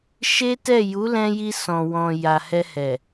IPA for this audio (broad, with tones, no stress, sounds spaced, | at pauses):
ʃ e˦ t ɛ˦˨ j u˨˦ l ɛ̃˧ j i˧ s ɔ̃˨ w ɔ̃˨ j a˨ h ɛ˧ h ɛ˨